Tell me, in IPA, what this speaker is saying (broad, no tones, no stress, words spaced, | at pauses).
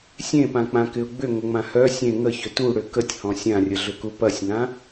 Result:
sʲẽpãk͡pãkɪʊ̯ ɡ͡bʏŋəŋ͡mã hœ sʲẽ ŋəçʏ tuɽʏ kətʲhɔ̃ sʲãrʲəɮʏku pɐsʲŋã